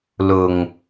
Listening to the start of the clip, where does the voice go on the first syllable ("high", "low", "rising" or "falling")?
low